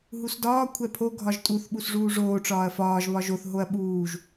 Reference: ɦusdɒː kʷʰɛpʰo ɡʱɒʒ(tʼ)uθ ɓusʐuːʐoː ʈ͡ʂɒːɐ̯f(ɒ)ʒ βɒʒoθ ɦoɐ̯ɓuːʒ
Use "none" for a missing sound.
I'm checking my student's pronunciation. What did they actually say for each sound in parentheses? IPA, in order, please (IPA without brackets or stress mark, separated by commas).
tʼ, ɒː